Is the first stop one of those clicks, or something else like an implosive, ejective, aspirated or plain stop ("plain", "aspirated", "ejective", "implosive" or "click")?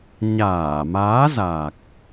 plain